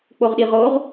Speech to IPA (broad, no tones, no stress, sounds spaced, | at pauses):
k͡p o ʁ ɗ i ʁ o ʁ